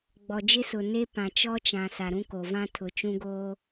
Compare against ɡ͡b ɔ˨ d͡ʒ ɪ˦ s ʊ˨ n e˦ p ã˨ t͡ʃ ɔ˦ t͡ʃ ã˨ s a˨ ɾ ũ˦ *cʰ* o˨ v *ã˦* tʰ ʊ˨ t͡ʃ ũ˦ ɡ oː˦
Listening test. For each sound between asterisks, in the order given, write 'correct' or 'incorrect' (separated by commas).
incorrect, correct